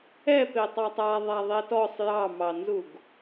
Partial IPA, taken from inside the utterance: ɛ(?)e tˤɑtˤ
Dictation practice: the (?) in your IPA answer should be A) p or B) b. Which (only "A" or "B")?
A